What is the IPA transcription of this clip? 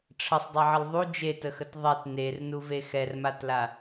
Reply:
ʈ͡ʂʰ ə sˤ dˤ ɛ ʕ ə l ðˤ u d͡ʒ e t ə x ə t ðˤ e t n e r n u v e x ɛ r m a t l a

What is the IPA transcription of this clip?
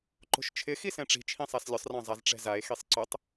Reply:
ǃ o̤ ʃ t͡ʃʰ ɪ x i s ɛ̃ ʈ͡ʂ i̤ t͡ʃʰ ĩ sˤ a s lʲ ʊ sˤ r ã zˤ a z ʈ͡ʂ ɛ̤ z a e̯ x i sˤ ǀ ʊ tˤ

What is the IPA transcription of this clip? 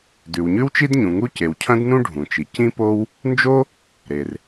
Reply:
d ʉ˩ w ɲ ʉ˥ w t͡ʃ i˥ d ɲ ũ˩ ŋ u˥ c e˩ w cʰ ɐ̃˥ d n ũ˥ ɖʱ ũ˩ t͡ʃ i˩ c ĩ˥ p o˥ w | n d͡ʒ o˥ | ɾ e˩ r

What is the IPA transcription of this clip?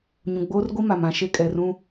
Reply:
ɲ ũ˨ ɡ͡b oː˦ r ɡʷ i˦ m a˨ m ã˨ ʃ e˦ kʼ ɛ˨ r ũ˦

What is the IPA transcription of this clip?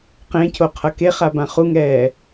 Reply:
q ẽ cʰ o qʰ ʌ k e χ a b ã χ u ŋ ɛː

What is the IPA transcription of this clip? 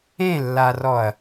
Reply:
ẽ lː a r ɔ ɐ̯

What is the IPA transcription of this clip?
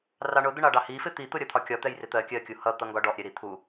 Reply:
r ɑ ɳ ʊ d̪ ə ɳ ɑ ɖ ɑ h i f ɪ t̪ i t̪ ʊ ɾʲ ʌ t̪ʰ ɒ kʲ ɒ t̪ ɛ j r ɪ t̪ ɜ kʲ ɜ kʲ u h ʌ t̪ ʌ ŋ ɡ ɒ ɖ ɔ ʔ ɾʲ ɛ ɾ i t̪ʰ u

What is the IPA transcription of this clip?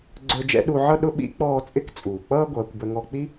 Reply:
ɡ͡ǀ ə˞˧ d͡ʒ ɛ̰˧˥ ɗ u˧ ʕ ʌ˥ ɗ ʊ˧˥ ɓ ḭ˧˥ k͡p ɔː˧ t͡sʼ ɪ˧˥ k t͡sʼ uː˩ k͡p ʌː˥ ɡʷ ʌː˩˧ kʷ b ə˧ ŋ ɔ˧ k͡p i˥

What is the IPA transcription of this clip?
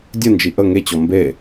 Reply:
dʲ ə n d͡ʒ i ʔ ə ŋ e t͡ɕ ɔ m b e

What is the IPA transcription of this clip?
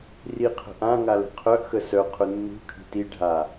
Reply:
r i qʰ ə̤ ʔ ã ŋ a l ə̤ qʰ œ ʔ x ə s œ qʰ ʊ nː ṳ kʰ i̤ t i ɖʱ a

